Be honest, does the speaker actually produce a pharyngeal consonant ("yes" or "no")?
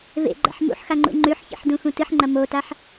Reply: yes